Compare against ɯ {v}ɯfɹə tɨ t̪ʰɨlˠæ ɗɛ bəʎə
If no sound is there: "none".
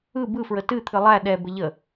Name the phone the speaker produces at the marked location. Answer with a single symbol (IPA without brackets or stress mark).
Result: b